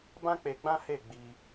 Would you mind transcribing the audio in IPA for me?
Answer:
bã˦k͡pe˧ɡ͡bã˦ he˦˨ɡ͡bi˧

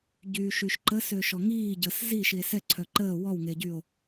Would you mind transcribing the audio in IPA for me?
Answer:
ɟyːʃyʃǃə søʃɔŋiː ɟəːszi ʃie̯sɛǀʰœ ǃəː wɔwŋeɟyo̯

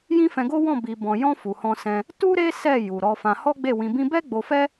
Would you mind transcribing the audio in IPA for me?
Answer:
jĩ˦fɛ̃˧ɡo˦wɔ̃˦˨ bi˨bɔ̃˨jɔ̃˧ fu˨hɔ̃˧sɛ̃˧ | tu˦ɾe˦ sɛ˦˨ ju˨ɾɔ˧fã˧ hɔ˦ɡ͡be˦˨wĩ˧bĩ˦ bɛ˦ɡ͡bo˧fɛ˦

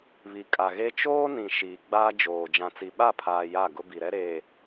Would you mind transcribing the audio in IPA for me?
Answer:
βi˨kʼa˨ɣe˦ t͡ʃoː˦nĩ˨ ʃiː˨ ɡ͡baː˦d͡ʒoː˨ d͡ʒã˨t͡si˨ɓa˦˨pʰaː˨ ja˦˨ɡʊ˦ bi˨ɾɛ˦ɾeː˨

